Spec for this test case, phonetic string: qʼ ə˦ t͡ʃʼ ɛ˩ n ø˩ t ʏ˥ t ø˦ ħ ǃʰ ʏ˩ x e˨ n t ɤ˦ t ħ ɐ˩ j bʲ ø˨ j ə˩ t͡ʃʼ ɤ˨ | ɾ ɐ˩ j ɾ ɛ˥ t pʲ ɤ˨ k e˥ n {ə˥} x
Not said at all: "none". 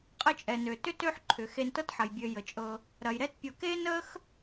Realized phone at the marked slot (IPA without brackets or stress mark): ə˥